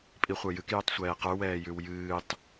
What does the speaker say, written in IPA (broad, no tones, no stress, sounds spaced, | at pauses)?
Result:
pʼ i χʷ ə˞ j ɨ k j ʉ tˤ sʷ ɛː q ə˞ w ɛː j ʉ w j ɨː tˤ